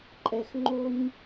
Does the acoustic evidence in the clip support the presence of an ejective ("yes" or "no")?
yes